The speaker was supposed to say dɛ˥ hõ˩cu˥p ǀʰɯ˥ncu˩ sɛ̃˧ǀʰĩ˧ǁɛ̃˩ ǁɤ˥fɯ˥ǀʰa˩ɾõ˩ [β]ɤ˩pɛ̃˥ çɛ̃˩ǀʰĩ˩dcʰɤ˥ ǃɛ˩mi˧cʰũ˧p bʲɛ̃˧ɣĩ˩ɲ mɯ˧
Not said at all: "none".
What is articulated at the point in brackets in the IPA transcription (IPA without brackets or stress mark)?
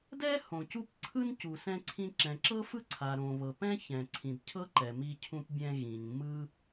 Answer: β